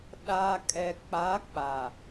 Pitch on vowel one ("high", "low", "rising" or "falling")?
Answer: low